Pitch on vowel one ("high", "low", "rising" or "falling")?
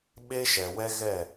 high